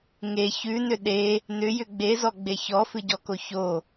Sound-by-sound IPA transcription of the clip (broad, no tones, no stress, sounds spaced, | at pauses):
ŋ e ç ʉ n ʏ ɗ e | n ʏ j ʏ ɡ͡b e z ɔ ɡ͡b e ç ɔ f ɨ ɟ ɔ k o ç o